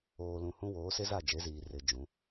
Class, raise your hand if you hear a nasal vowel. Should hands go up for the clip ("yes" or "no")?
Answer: yes